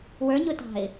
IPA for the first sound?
w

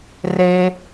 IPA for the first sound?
r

